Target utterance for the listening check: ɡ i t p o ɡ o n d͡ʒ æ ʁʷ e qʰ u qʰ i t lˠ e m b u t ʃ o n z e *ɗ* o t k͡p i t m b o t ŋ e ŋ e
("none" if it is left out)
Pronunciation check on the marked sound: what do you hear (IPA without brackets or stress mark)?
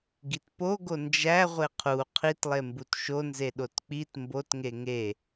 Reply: ɗ